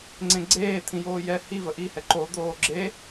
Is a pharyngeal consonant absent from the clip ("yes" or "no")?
yes